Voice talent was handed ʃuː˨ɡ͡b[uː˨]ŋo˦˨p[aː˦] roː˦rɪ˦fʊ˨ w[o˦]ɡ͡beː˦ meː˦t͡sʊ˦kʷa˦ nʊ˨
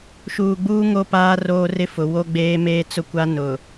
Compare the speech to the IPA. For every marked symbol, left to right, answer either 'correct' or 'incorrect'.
incorrect, correct, correct

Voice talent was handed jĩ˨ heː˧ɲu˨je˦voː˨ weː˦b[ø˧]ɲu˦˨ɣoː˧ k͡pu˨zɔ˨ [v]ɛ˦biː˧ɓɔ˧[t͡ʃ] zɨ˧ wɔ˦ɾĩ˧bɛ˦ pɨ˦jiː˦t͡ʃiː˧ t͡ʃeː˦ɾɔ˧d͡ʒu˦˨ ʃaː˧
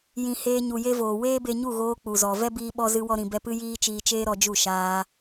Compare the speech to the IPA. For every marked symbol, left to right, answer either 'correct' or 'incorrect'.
incorrect, correct, incorrect

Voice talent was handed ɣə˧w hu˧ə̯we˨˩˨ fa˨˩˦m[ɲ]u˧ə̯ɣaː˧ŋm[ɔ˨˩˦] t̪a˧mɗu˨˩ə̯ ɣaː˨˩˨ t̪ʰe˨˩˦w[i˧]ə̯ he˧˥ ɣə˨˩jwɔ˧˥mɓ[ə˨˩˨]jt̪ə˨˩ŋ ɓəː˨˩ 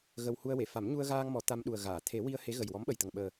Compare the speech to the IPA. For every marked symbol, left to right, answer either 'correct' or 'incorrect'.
correct, correct, correct, incorrect

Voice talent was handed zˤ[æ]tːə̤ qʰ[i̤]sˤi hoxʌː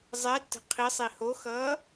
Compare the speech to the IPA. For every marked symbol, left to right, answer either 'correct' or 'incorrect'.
incorrect, incorrect

